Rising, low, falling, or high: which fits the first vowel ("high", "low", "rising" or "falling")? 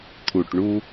low